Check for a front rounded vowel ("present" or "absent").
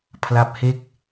absent